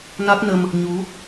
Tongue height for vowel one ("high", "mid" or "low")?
low